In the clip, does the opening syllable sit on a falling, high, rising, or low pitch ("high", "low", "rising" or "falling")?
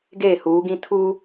falling